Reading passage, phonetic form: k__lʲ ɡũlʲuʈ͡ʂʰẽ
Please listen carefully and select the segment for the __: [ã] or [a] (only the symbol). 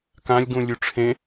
ã